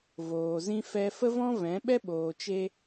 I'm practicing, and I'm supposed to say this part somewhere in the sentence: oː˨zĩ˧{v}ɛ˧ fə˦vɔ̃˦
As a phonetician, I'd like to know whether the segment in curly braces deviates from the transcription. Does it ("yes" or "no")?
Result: yes